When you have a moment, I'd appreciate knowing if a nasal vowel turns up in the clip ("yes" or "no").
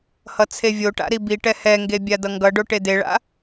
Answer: no